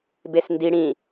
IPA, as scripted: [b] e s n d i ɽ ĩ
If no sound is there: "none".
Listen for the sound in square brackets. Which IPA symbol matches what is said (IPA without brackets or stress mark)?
b